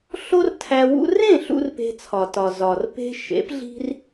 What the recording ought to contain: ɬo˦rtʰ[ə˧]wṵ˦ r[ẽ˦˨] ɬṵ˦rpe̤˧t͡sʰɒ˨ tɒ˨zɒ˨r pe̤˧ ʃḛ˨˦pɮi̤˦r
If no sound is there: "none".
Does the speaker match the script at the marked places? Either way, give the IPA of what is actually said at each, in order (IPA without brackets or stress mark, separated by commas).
æ˧, ẽ˦˨